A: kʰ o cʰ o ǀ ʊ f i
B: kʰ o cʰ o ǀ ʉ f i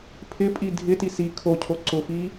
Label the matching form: A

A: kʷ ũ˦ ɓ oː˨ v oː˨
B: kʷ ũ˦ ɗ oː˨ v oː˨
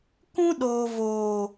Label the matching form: B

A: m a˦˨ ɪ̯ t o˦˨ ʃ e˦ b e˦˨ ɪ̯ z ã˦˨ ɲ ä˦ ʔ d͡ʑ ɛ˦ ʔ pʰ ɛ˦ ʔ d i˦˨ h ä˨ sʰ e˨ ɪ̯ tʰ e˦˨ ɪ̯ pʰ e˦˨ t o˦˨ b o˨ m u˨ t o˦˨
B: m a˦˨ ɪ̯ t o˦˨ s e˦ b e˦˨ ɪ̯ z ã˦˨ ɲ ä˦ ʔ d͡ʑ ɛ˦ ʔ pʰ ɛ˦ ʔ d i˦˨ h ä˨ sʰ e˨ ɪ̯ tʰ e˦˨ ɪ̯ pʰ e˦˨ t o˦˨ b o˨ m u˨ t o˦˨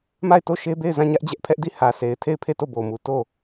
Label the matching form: A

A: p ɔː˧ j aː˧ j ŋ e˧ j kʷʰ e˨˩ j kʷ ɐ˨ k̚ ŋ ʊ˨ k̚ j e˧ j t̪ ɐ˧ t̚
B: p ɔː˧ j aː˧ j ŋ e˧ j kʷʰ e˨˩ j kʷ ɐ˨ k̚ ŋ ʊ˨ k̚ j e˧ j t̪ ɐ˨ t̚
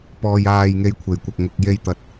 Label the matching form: B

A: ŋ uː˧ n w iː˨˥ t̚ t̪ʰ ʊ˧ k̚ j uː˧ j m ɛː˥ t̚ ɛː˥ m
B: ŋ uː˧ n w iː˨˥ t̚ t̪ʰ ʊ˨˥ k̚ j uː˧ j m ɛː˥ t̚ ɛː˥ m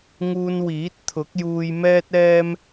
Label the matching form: B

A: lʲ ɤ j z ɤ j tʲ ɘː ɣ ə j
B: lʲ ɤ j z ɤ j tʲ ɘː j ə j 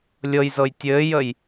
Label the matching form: B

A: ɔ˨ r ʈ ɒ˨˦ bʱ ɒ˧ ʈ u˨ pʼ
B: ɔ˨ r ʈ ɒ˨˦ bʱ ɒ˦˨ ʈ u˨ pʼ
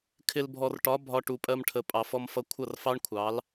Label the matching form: A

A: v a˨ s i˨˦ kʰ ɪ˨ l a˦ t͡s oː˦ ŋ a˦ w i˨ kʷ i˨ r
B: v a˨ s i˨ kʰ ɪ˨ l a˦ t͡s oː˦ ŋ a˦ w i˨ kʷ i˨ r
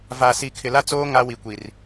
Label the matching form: B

